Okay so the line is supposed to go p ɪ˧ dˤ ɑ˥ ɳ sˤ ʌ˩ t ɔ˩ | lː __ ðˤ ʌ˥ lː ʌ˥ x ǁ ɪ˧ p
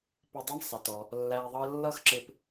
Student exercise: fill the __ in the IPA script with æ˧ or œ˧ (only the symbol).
æ˧